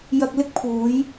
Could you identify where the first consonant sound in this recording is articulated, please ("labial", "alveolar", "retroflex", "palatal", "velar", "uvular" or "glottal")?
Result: palatal